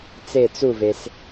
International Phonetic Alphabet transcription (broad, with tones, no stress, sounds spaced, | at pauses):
t͡s e˥˧ t͡s u˥˧ v e˧ s